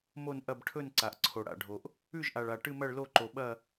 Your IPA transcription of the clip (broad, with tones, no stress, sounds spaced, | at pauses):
m o˥˧ n ʔ ɐ˥˧ b ʈʰ ɵ˥˧ n ǀ a˨ ʔ ǀʰ o˨ ɽ a̰˨ ɖʱ o˨ ʔ | ʉ˥˧ ʒ ʔ a˨ ɭ a˨ ʈ ɨ˥˧ m ɐ˥˧ ɭ l o˥˧ ǃ o˨ ɓ ɐ˥˧